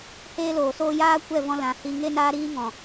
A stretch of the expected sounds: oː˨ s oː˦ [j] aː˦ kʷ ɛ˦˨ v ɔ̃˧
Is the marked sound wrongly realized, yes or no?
no